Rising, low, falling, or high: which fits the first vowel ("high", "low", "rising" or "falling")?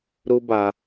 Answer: high